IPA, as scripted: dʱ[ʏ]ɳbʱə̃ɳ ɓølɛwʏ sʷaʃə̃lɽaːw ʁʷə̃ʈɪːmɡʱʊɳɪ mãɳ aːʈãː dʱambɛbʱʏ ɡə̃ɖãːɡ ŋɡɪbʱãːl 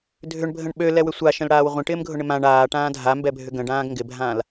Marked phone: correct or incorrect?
correct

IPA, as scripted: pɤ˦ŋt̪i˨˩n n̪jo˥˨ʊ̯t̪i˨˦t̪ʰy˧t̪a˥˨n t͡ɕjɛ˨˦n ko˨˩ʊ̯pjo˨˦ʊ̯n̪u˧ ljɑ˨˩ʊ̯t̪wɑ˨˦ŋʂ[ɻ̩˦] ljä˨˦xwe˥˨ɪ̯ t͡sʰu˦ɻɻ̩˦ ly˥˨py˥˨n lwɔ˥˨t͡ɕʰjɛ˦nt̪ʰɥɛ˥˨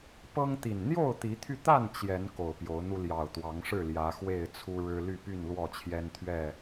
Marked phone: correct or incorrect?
incorrect: ɻ̩˥˨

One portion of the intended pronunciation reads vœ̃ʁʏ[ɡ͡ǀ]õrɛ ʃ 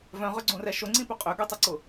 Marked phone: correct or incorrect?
correct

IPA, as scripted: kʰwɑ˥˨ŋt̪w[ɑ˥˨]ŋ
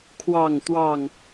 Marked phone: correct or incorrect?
correct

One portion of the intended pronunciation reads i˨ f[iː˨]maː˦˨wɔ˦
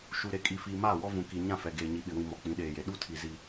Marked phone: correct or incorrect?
correct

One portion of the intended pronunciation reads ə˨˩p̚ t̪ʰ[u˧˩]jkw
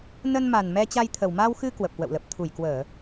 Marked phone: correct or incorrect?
correct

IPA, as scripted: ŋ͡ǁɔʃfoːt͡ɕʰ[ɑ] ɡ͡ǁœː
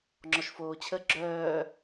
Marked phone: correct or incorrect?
incorrect: ə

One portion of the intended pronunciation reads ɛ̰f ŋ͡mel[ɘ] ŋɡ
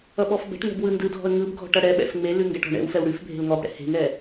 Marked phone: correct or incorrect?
incorrect: ʉ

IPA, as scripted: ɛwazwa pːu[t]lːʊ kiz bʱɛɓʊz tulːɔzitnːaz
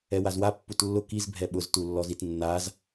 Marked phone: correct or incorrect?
correct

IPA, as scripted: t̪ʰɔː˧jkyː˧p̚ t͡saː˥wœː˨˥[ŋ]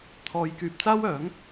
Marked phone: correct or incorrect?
correct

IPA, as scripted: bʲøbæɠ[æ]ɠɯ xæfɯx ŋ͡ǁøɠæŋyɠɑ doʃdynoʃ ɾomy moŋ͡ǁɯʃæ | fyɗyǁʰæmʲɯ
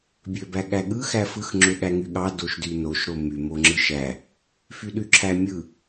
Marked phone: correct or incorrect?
correct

